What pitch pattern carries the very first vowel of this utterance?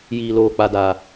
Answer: low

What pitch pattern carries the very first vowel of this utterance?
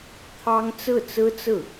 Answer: high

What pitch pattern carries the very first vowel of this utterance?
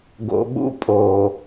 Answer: low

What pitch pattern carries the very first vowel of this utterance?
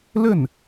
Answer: falling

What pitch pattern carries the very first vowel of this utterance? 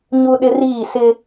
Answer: high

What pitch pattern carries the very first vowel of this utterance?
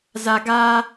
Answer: low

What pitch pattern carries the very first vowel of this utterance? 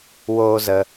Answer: high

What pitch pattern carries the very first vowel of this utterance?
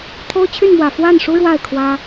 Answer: high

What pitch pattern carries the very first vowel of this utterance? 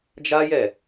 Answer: high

